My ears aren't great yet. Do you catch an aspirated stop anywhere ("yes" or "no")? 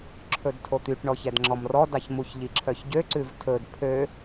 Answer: yes